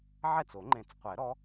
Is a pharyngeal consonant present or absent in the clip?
present